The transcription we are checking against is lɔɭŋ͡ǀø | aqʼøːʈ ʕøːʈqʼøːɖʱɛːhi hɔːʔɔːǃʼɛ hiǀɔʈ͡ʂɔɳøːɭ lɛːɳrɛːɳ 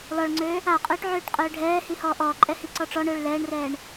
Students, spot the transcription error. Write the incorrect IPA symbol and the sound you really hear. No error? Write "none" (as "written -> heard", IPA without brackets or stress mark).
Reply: none